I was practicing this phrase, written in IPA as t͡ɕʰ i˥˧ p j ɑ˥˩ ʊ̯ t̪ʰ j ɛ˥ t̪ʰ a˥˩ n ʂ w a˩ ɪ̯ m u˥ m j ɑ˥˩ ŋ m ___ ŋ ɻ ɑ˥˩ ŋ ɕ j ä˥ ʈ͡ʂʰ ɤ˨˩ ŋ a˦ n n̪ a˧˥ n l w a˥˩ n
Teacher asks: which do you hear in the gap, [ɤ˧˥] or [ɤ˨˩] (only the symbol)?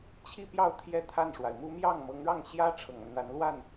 ɤ˧˥